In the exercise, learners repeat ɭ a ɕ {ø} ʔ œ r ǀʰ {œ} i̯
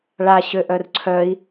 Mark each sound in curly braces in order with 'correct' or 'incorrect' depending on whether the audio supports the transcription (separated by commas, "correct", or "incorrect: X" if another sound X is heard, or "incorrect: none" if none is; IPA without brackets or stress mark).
correct, correct